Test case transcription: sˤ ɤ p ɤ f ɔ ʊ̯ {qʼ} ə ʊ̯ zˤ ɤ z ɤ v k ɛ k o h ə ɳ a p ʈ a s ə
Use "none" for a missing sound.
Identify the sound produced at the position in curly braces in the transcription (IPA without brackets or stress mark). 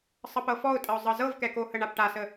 tʼ